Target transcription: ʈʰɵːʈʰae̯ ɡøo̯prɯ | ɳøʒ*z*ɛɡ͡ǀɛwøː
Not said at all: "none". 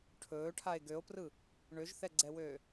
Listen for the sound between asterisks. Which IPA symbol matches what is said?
θ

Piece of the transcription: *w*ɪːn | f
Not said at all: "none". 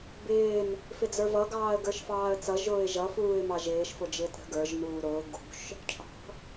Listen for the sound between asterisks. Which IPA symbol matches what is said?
b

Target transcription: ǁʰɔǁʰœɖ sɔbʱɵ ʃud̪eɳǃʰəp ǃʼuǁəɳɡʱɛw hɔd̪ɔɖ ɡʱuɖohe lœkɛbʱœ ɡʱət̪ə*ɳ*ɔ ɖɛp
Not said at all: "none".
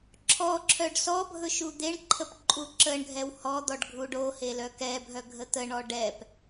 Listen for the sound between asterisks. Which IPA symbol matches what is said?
ɳ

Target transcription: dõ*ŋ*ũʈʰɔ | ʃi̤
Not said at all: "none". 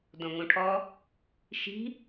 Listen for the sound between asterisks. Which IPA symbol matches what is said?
ŋ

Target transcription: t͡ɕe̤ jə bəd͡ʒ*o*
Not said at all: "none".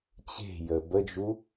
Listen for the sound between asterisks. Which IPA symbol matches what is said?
u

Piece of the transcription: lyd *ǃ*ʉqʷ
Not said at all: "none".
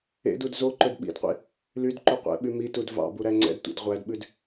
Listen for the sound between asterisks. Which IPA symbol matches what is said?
ǃ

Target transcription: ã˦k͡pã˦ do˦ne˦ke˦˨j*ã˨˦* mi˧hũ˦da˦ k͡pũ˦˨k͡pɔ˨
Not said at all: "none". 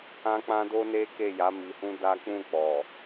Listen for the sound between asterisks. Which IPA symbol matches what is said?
a˨˦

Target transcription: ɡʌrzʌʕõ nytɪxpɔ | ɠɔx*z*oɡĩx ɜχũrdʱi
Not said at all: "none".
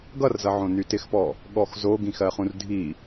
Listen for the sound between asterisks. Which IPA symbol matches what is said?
z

